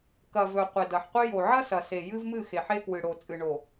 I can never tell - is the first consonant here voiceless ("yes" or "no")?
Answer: yes